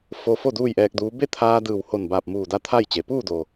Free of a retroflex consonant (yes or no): yes